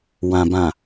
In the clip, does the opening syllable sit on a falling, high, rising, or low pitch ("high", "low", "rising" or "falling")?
low